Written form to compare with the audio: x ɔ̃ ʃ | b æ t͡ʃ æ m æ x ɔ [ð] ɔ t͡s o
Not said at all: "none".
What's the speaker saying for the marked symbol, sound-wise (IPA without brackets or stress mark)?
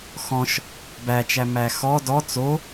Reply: d